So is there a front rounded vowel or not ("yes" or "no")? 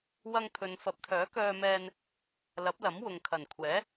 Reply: yes